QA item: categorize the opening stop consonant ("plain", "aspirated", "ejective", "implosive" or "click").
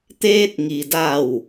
plain